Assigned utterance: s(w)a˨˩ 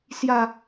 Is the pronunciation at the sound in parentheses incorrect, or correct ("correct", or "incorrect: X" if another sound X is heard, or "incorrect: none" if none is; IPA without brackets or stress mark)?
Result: incorrect: j